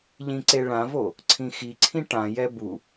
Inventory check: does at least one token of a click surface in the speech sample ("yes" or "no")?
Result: yes